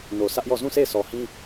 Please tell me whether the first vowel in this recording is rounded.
yes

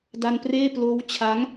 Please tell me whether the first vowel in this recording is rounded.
no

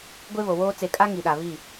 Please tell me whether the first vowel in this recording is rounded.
no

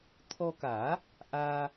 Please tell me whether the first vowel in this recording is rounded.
yes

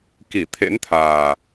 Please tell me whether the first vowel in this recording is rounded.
no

